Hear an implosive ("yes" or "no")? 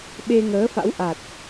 yes